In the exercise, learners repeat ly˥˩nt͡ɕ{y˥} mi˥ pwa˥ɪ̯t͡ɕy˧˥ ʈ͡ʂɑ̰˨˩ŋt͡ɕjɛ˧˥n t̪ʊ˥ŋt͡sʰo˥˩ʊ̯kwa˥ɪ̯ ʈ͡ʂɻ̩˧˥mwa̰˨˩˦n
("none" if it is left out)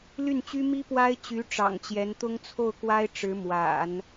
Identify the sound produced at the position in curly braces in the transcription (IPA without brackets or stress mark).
y˥